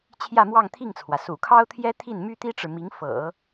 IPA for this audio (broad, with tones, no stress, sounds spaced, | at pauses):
t͡ɕʰ j ä˥˧ m w ɑ˥˧ ŋ t̪ʰ i˥˩ ŋ t͡sʰ w ä˩ s ṵ˨˩ kʰ ɑ˥ ʊ̯ t̪ʰ j ɛ˥ t̪ʰ i˥˩ n m y˥ t̪ i˥ ʈ͡ʂ ɻ̩˨ m i˧˥ ŋ f ɤ̰˨˩˦